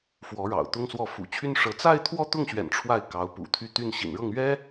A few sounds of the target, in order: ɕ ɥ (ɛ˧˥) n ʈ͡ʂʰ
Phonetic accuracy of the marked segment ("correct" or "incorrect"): incorrect